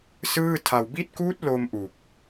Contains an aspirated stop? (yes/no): yes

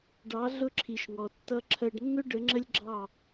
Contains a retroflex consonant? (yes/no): yes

